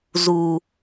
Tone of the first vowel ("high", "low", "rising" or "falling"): high